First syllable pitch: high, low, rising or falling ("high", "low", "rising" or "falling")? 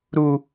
high